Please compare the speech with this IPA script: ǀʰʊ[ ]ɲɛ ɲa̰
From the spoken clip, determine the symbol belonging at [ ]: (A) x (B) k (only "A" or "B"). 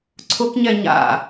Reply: B